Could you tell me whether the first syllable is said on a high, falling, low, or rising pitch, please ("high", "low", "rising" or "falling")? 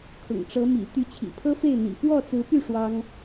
low